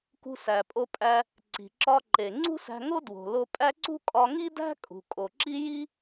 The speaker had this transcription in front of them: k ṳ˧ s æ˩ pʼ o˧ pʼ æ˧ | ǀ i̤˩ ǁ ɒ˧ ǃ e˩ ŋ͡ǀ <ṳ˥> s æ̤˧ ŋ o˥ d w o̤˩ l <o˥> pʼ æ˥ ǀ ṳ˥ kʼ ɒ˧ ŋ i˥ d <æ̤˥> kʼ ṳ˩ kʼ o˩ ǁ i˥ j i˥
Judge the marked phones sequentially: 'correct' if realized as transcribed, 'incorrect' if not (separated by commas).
correct, incorrect, correct